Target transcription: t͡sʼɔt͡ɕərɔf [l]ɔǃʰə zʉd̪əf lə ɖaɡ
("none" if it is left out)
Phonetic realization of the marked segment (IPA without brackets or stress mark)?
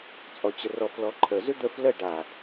l